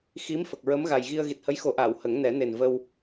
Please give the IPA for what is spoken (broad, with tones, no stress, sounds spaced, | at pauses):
x i˧˥ m f ə˨˩ k̚ ɹ ə˧˥ m ɣ a˨˩ j ɣ i˧ ə̯ ɣ i˨˩ t̚ h ə˧˥ j x o˨˩˦ ʔ aː˨˩˨ w h ə˨˩˦ ŋ n ɛ˨˩˦ n e˨˩ n v ə˧ w